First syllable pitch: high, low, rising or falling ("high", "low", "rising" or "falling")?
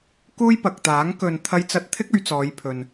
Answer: high